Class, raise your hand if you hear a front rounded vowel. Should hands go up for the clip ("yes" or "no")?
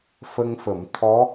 no